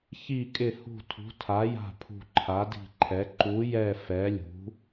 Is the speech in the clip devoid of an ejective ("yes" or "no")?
no